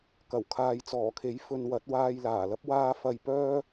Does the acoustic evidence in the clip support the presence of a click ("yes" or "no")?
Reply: no